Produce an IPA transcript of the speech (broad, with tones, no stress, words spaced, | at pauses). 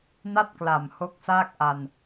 na˥˩t̚kla˨˩m ho˦˥k̚saː˥˩k̚ʔa˧n